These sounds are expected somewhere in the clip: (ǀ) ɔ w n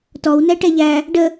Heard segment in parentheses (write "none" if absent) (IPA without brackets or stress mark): t